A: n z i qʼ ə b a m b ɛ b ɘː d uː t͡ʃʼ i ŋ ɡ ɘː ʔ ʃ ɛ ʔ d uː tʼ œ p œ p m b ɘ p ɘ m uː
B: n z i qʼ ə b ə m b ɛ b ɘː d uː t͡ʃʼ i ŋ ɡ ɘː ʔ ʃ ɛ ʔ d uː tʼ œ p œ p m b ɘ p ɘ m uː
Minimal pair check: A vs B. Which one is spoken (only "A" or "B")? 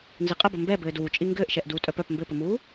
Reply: B